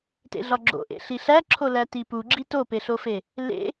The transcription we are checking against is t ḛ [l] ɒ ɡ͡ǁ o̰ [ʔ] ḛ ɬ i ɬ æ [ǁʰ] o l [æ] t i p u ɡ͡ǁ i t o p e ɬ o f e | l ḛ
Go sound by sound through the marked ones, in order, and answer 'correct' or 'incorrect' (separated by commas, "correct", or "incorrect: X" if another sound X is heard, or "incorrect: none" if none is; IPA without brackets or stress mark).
incorrect: ɮ, correct, correct, correct